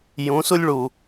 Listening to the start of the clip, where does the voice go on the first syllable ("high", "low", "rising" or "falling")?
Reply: rising